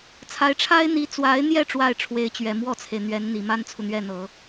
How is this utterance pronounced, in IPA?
t͡sʰ a˧˥ ɪ̯ ʈ͡ʂʰ a˥ ɪ̯ n̪ i˧˥ t͡s w a˧˥ ɪ̯ n̪ j ɛ˥˧ ʈ͡ʂ w a˥˩ ɪ̯ ʈ͡ʂʰ w e˧˥ ɪ̯ t͡ɕ ɥ ɛ˨˩ m w ɔ˥˩ t͡sʰ e˩ ɪ̯ n̪ ɥ ɛ˧˥ n n̪ i˨˩ m a˥ n t͡sʰ u˨ n̪ ɥ ɛ˥˩ n̪ ɤ˨˩˦

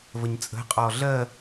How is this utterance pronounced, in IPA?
v ə ɲ t͡sʼ ə̤ qʼ ɔː ɮ ɜ

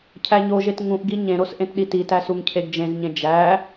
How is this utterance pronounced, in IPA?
cʰ æ ɲ o ʒ e t ŋ ũ ʔ ɡ i ɲ ẽ ɾ o s ʔ ẽ t ɗ i t i t æ s u ŋ cʰ e ɡ d͡ʒ ẽ z ɲ ẽ d͡ʒ æ

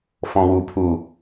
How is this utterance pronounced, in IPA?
f ɔ̃ w u pʰ u

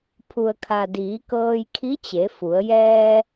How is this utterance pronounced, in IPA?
pʰ u˩ ə̯ kʰ a˩ d iː˩˧ k ɤː˧ j kʰ i˧˥ t͡ɕ e˩˧ f u˩˧ ə̯ j ɛː˧

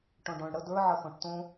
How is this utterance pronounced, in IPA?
ʈ õ ɖ õ ɳ ɽ ə d ə˞ ʕ ə x õ ʈ t õ

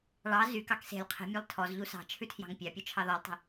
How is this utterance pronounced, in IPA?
ɭ ɑ z y k ɑ k s e̤ lʲ qʰ i̤ mʲ e lˠ tʰ ɔ z ʎ u s ɑ̤ t͡ʃʰ ʉ tʰ j ɑ̤ ŋ pʲ ɑ pʲ u t͡ʃʰ ɑ ð ɔ lˠ tˤ e̤

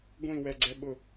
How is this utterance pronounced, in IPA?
ɡʷ ĩ w ɛ ɡ͡ǀ ɛ ɓ ʊ

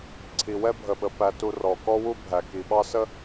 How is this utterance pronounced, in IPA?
ǀʰ i˨ w ɛ˦ bʱ ə˨ ɓ ə˨ p æ˨ t u˨ r ɔ˨ k ɔ˦ w u˦ bʱ æ˨ k i˨ ɓ ɑ˦ s ə˦

